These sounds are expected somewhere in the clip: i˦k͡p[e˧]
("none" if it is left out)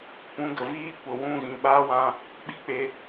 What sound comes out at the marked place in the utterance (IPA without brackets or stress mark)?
e˧